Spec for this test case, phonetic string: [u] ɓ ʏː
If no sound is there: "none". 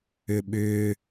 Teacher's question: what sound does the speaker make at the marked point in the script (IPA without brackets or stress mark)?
ʏ